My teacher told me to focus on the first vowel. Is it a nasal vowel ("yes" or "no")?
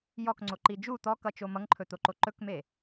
no